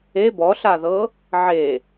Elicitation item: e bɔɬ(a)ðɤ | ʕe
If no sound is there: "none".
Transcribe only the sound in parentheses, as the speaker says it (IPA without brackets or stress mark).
a